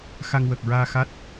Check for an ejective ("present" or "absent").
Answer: absent